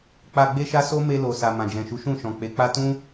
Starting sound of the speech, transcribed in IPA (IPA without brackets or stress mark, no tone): k͡p